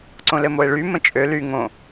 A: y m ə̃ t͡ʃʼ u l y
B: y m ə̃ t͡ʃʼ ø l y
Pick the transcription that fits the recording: B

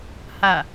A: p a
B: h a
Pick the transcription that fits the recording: B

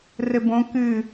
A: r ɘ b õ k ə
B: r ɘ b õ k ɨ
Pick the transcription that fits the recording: B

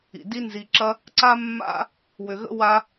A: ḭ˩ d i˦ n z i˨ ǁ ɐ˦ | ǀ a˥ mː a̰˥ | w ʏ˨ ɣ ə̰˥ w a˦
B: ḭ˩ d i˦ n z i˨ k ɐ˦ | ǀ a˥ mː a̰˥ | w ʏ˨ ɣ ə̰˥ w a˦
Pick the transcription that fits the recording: A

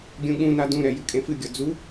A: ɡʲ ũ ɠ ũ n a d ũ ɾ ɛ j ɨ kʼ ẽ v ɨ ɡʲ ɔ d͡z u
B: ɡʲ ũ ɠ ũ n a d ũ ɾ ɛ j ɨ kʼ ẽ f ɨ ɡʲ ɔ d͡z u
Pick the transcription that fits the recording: B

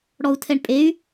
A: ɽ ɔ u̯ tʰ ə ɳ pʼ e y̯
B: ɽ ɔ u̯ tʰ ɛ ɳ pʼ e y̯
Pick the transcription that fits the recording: B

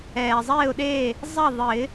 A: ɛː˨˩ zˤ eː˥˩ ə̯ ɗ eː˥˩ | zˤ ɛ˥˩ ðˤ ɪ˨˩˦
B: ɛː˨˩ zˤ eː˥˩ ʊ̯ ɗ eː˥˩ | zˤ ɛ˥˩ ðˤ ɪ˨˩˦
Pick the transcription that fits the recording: B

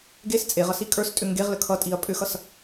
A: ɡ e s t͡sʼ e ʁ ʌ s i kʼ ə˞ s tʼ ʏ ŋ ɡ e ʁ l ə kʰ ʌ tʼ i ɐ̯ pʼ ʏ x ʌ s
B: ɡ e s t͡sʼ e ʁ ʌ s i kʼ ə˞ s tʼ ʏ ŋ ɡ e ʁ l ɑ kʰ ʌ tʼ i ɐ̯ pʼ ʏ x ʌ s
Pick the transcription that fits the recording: A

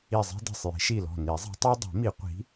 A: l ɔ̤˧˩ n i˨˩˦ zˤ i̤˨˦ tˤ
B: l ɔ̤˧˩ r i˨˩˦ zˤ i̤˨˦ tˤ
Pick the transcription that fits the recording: A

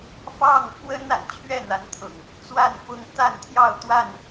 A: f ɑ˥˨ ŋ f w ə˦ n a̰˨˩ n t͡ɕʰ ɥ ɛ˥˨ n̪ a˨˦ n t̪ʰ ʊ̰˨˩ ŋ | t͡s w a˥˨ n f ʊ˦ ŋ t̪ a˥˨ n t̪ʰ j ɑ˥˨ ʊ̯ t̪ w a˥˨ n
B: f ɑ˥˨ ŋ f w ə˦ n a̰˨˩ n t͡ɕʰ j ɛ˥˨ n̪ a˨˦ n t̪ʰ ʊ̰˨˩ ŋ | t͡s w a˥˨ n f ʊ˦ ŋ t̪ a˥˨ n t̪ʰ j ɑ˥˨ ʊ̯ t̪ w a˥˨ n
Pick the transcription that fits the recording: A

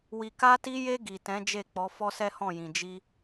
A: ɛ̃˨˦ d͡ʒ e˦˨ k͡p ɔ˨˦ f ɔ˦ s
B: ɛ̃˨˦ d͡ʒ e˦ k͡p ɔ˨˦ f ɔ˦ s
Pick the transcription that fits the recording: A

